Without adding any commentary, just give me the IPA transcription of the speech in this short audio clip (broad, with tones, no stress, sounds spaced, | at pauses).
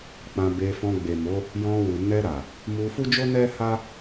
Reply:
k͡p ã˧ b e˧ f ɔ̃˧ ɡ͡b e˨ m o˨˦ | j ɔ̃˧ w u˨ n ɛ˧ ɾ a˨ | m u˧ f u˦ d͡ʒ o˦ n ɛ˦ h a˦